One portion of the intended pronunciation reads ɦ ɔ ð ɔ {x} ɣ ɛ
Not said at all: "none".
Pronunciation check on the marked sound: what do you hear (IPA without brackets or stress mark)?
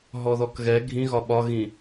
k